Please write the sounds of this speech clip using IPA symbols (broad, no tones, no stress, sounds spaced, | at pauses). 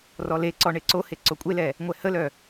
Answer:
r ɔ l e ǀ ɔ ɳ e ǀ o h e ǀ o kʷʼ e l ɛ | ŋʷ ɛ h ə l œ